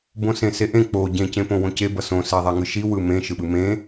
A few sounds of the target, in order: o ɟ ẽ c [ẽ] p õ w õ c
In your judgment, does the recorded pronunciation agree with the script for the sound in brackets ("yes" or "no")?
yes